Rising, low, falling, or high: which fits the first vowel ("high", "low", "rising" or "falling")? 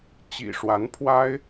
low